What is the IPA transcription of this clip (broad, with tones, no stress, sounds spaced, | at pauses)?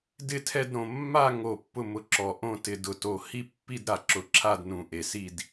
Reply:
d ɪ˦˨ tʰ ɛ˦˨ d ɾ õ˨˩ mː a˦˨ ŋ o˨˩ pː ʊ˦˨ m ʊ˨˩ ǁ ɔ˨˩ ʔ õ˦˨ t ɪ˨˩ d ʊ˨˩ t o˨˩ h i˦˨ pː i˦˨ d ɾ a˨˩ ǁ ʊ˨˩ ǁʰ a˦˨ d n ũ˨˩ ʔ e˨˩ s i˦˨ d